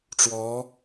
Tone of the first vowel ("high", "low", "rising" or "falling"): rising